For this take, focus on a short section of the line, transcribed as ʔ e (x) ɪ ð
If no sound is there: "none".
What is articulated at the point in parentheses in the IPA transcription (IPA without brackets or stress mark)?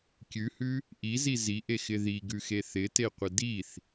x